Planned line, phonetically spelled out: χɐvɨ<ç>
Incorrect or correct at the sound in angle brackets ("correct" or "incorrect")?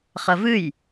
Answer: incorrect